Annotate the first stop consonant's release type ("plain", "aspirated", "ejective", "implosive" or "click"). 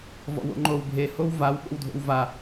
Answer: click